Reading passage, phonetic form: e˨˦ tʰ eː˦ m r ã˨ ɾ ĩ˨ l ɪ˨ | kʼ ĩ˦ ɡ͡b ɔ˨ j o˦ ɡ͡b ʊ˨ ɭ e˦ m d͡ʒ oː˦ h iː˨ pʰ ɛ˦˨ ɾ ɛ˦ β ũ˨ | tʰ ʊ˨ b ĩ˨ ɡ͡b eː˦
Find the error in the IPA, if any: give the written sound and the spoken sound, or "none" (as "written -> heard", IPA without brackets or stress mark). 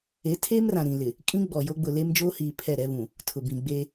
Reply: ɭ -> l